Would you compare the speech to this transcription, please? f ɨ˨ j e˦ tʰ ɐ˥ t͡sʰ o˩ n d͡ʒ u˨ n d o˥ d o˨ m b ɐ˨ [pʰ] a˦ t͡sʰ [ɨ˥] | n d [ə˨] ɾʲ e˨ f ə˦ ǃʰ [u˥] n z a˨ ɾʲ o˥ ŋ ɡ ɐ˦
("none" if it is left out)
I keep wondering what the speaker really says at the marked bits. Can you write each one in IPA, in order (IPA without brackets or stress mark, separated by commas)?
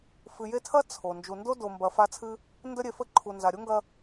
f, ɨ˥, ə˦, u˨